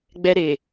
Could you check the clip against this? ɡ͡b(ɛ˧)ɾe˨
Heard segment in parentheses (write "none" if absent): ɛ˧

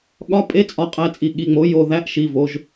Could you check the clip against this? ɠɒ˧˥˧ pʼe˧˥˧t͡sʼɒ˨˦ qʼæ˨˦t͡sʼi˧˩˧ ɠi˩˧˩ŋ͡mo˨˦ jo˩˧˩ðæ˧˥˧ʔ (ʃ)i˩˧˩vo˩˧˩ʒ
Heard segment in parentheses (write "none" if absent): ʃ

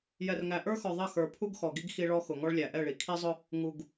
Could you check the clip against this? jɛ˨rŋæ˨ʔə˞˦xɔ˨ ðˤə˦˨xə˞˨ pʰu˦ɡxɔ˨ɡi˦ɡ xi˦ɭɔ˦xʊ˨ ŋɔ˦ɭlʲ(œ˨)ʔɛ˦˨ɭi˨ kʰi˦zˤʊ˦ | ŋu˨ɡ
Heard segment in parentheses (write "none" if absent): æ˨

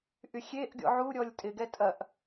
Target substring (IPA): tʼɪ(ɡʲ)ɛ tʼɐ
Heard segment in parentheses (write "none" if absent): ɡ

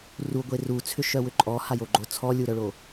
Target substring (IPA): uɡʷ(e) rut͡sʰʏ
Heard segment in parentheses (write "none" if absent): e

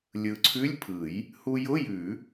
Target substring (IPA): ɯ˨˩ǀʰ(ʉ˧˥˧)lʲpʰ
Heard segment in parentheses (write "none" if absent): ʉ˧˥˧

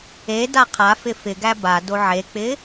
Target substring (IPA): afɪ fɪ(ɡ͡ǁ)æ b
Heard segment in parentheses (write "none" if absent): ɡ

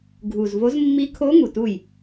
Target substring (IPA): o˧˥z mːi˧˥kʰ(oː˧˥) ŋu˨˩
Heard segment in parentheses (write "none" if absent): o˧˥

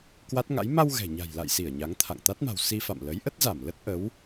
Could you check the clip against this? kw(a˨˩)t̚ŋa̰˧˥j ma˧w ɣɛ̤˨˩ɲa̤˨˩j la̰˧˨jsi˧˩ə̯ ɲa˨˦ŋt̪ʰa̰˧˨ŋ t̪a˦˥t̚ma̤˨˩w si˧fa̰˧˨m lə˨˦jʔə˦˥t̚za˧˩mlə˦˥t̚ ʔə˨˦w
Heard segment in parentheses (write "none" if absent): a˦˥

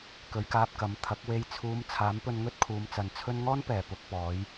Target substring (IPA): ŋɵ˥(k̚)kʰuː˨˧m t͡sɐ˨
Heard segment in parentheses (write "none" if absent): t̚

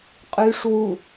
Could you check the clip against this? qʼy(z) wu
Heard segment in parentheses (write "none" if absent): ʂ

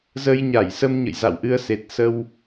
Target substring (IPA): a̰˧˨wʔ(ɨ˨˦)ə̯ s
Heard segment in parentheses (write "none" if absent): ɨ˧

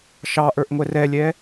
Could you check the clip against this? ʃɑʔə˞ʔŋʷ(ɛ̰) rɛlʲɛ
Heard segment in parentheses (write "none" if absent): ɛ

